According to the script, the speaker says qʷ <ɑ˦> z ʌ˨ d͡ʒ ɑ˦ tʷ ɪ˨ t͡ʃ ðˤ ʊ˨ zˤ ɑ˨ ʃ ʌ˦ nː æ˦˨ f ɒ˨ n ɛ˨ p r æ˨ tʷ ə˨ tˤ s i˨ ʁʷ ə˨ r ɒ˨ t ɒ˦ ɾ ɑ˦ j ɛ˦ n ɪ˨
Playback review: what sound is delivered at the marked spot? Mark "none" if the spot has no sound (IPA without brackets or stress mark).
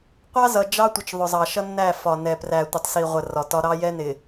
ɑ˦